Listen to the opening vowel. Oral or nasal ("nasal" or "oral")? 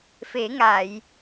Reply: oral